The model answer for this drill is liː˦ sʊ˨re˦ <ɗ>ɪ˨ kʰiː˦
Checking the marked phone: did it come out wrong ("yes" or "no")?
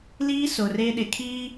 no